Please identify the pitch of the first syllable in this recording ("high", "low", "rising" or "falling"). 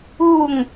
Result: falling